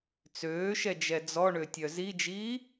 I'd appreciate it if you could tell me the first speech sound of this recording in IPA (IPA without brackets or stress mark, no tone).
t͡s